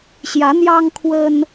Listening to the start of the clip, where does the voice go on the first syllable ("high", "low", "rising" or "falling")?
rising